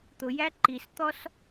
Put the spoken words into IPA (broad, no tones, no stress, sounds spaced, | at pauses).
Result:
t̪ ʊ j æ ǃ i s t̪ ɔ s